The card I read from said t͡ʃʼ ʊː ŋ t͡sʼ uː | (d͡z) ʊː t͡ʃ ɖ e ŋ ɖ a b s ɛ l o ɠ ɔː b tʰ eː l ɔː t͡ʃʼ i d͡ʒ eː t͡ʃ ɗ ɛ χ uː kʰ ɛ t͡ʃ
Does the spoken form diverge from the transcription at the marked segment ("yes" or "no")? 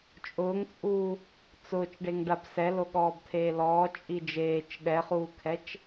yes